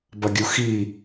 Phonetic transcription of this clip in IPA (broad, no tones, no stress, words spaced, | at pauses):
bɐɡʲuxi